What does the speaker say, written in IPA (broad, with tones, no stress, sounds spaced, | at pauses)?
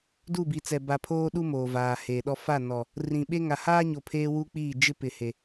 d u˦˨ b i˨ t͡s ɛ˨ b a˨ pʰ oː˦ ɗ u˦ m oː˨ v aː˨ h eː˨ ɗ ɔ˦ f a˦˨ n ɔ˨ | r ĩ˨ ɓ e˦ ŋ a˨ h aː˦ ɲ o˨ pʰ eː˦ w u˦ k͡p iː˦˨ d͡ʒ ɪ˦ p ɪ˨ h e˨